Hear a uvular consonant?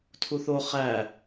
yes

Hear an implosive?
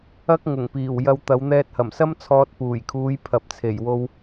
no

